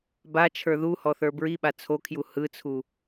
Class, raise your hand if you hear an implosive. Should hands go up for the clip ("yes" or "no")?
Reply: yes